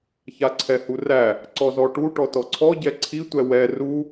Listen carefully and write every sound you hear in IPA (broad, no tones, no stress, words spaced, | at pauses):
çaǀʰɛhuræ | ǀɔzɔʈu ʈɔtɔǀʰɔ ɟɛǀʰi tʷɛwɛ ru